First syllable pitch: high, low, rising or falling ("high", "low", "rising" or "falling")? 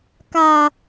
low